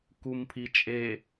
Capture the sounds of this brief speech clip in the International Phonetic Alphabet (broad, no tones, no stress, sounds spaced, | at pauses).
k u m pʰ i t͡ʃʼ e